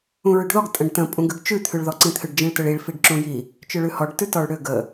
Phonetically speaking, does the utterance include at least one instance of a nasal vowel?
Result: yes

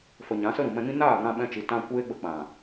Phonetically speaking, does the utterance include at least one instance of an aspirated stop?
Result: no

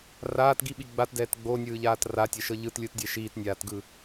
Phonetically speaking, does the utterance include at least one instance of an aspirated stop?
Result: no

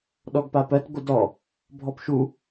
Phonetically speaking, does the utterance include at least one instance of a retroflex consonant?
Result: no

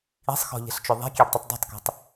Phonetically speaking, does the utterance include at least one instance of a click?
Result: no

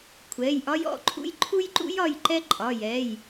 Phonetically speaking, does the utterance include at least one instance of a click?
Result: yes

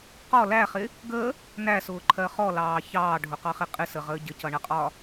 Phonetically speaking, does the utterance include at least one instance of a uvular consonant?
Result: yes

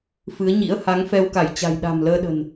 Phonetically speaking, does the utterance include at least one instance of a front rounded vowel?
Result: no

